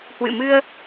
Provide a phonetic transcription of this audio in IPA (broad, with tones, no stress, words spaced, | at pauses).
hwɨ̰˧˨mɨ˧ə̯